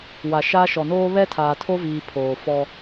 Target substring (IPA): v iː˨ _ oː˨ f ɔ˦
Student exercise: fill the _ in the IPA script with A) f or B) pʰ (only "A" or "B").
B